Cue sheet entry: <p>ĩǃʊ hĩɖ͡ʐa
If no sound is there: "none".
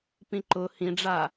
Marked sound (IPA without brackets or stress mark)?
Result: p